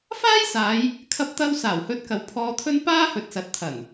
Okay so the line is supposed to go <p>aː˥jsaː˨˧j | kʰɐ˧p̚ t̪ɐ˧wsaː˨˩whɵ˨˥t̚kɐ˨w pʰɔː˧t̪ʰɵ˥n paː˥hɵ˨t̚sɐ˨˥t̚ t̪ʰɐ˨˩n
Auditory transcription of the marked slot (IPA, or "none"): f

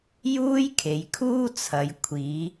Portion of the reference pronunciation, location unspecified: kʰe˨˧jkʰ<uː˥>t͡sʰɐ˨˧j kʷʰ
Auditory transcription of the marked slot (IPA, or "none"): uː˥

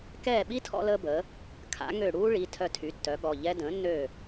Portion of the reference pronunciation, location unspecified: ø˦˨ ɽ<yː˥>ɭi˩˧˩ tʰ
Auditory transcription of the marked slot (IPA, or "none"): uː˥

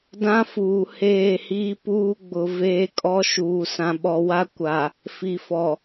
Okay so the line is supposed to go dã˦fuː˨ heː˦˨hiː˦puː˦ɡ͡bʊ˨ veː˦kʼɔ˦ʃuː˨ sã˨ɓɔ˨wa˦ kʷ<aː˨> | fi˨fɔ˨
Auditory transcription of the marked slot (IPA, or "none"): a˨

